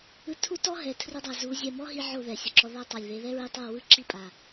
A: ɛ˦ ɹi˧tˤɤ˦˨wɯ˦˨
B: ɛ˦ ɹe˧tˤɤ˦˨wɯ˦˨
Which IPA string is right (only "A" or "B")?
A